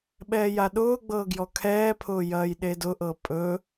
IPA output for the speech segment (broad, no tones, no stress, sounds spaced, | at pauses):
ɓ ɛː j a ɗ ʊː ɡ͡b ɤː ɡ j ɔ kʰ ɛː pʰ ʊː j ɐː j ɗ e d ʊ ʔ ɤ pʼ ɵ